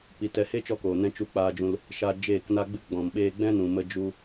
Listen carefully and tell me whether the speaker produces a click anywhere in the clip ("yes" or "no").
no